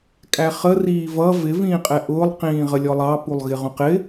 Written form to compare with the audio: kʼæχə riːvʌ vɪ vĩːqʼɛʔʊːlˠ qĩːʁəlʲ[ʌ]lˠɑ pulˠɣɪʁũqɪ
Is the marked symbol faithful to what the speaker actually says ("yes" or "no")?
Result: no